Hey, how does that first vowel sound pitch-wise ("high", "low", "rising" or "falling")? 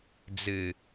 low